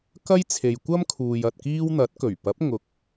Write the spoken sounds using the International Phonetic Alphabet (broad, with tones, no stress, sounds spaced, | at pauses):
k ɐ˥ j t͡sʰ e˨ j kʷ ɐ˥ m kʰ uː˨ j ɐ˨ t̚ k iː˥ w n̪ ɐ˨˥ t̚ k ɵ˨˩ ɥ p ɐ˨˥ p̚ ŋ ʊ˨˥ k̚